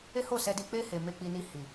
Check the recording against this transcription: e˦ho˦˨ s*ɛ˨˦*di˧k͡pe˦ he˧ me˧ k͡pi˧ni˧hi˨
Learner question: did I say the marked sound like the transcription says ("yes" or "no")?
no